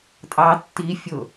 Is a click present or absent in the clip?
absent